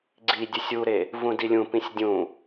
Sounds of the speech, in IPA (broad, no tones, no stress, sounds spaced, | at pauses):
ɡ͡ǀ i dʲ ɵ sʲ u ɾ e | v ũ d i lʲ ũ p ĩ sʲ dʲ ũ